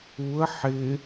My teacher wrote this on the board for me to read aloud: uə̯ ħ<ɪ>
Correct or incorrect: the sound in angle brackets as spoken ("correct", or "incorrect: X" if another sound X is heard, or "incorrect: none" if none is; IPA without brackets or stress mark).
correct